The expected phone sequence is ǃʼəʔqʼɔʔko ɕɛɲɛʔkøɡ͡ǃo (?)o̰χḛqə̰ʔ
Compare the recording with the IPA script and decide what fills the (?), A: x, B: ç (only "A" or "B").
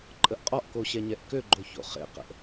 B